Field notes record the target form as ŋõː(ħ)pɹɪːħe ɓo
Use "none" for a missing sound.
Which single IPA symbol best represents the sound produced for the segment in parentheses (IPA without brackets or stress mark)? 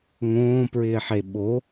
none